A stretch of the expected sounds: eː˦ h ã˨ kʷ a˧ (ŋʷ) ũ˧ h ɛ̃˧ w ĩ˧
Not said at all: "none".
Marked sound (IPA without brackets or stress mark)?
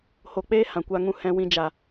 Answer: ŋ